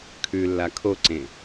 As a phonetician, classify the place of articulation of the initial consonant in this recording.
velar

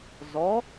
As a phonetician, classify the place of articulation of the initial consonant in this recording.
alveolar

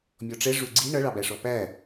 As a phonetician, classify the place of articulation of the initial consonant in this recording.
labial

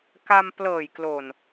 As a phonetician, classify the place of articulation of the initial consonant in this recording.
velar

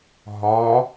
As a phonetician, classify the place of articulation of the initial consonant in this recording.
glottal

